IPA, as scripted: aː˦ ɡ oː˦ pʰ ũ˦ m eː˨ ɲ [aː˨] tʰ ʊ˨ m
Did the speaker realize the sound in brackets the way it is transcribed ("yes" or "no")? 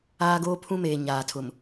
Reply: yes